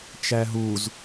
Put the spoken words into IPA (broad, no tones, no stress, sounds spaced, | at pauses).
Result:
t͡ʃ æ ɦ u z